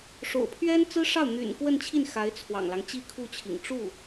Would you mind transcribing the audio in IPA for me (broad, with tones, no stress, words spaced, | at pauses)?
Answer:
ʂo̰˨˩ʊ̯pʰɥɛ˥nt͡sɹ̩˥ʂɑ˥˩ʊ̯ n̪y̰˨˩n kwə˥˧nt͡ɕʰi˥˩n xa˧˥ɪ̯ t͡sʰwɑ̰˨˩ŋlɑ˦ŋ t͡ɕi˥˧kʰu˥˩t͡ɕʰḭ˨˩ŋ ʈ͡ʂu˥˩